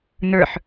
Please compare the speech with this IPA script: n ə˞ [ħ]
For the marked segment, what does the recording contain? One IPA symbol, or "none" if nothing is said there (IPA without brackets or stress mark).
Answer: ħ